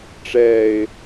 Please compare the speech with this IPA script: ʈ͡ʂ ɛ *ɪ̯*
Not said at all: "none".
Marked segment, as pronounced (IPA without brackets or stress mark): ɪ̯